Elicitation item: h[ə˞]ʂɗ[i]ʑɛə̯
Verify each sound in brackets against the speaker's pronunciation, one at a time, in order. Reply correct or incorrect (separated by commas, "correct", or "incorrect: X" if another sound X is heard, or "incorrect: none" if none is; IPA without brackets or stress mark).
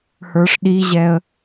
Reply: correct, correct